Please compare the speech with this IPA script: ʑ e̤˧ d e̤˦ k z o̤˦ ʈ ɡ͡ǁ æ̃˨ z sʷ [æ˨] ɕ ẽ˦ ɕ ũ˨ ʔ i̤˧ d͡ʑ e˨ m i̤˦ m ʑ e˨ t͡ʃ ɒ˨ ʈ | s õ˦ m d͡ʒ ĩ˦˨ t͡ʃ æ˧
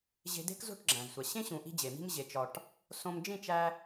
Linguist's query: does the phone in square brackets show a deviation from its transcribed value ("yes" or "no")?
no